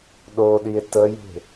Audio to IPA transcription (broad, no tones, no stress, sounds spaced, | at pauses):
ɗ o ɗ i e̯ t ə j e̤